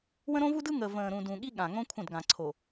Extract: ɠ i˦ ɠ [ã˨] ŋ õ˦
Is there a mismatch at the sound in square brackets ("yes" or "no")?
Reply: no